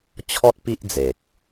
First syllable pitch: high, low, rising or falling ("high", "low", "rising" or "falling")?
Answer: high